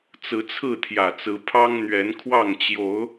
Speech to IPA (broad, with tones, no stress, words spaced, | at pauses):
t͡sɹ̩˨˦ t͡sʰɹ̩˥˨t̪ʰjä˨˩t͡sɹ̩˨˦ pʰɑ˦ŋn̪ɥɛ˨˦nkʰwɑ˥˨ŋ t͡ɕjo˨˦ʊ̯